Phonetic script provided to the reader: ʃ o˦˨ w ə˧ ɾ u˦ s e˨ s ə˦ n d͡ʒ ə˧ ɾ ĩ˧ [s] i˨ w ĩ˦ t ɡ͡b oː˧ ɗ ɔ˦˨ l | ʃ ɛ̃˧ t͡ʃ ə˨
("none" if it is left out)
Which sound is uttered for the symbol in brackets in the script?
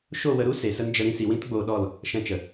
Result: s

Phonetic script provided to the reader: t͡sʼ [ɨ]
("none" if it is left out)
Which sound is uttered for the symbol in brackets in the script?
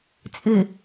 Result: ɨ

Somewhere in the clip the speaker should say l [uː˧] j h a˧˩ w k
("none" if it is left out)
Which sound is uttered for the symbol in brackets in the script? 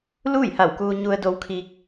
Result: uː˥˨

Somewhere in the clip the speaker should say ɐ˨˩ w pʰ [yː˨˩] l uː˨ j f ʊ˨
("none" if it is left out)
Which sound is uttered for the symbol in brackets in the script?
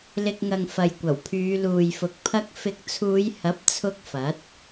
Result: yː˨˧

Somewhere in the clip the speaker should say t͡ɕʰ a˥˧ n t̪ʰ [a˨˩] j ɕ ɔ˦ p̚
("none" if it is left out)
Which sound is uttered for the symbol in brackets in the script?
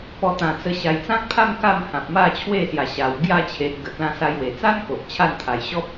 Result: a˨˩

